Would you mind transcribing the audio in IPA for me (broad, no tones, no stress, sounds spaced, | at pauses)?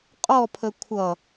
qʼ ɔ pʰ ə kʷʰ ʌ